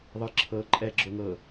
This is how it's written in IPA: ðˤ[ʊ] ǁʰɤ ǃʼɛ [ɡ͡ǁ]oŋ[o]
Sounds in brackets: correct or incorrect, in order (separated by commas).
incorrect, correct, incorrect